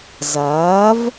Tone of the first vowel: rising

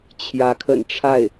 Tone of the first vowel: rising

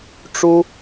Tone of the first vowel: high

